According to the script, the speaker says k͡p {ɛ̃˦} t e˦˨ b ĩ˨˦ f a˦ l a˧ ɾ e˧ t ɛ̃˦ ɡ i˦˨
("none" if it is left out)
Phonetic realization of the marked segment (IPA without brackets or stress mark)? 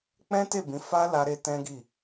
ɛ̃˦